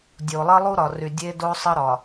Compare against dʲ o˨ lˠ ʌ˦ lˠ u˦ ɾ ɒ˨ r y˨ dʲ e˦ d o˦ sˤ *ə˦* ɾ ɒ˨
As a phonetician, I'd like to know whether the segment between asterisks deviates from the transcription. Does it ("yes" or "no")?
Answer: no